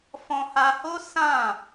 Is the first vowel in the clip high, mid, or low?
mid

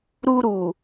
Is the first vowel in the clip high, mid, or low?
high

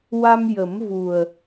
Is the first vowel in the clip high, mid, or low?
low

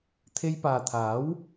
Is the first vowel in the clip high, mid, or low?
mid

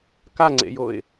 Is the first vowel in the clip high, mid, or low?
low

